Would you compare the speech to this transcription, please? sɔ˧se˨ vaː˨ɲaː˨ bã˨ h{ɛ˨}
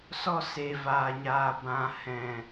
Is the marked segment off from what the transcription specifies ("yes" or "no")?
yes